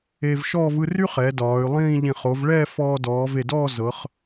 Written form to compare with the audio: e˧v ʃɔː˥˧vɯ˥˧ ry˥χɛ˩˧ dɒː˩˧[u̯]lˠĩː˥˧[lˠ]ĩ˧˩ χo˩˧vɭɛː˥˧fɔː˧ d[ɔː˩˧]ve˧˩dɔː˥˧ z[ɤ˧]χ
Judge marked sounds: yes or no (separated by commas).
no, no, yes, no